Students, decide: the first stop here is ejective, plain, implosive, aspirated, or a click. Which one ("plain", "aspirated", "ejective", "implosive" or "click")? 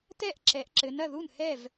plain